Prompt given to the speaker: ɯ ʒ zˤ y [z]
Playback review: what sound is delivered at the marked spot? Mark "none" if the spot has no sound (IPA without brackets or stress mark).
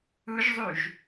ʒ